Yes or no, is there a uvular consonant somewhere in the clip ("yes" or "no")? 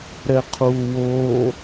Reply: yes